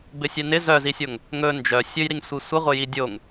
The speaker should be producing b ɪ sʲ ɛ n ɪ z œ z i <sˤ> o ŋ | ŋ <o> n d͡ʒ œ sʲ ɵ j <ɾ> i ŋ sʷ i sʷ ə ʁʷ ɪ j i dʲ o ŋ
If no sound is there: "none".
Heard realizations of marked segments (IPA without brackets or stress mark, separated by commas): sʲ, ɵ, ɾ